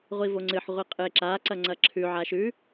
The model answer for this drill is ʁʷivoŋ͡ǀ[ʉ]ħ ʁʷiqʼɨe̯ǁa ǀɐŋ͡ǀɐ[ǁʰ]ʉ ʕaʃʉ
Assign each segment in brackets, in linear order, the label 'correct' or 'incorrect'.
incorrect: ɨ, correct

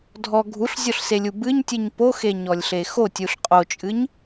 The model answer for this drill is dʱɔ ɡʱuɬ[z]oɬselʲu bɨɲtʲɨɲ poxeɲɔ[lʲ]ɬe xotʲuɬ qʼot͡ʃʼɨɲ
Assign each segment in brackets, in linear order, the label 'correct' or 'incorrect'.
incorrect: zʲ, correct

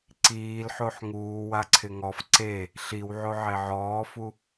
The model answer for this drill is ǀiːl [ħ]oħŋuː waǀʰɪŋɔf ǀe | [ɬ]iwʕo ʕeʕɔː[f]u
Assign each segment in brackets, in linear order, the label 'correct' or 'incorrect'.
correct, correct, correct

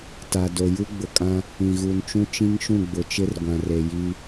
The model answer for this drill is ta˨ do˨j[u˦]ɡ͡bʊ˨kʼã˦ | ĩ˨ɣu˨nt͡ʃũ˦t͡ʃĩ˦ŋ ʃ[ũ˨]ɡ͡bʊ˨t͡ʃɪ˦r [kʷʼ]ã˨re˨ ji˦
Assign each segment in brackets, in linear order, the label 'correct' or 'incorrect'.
correct, incorrect: ũ˦˨, incorrect: ɡʷ

